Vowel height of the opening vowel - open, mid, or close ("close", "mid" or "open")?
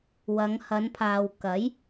open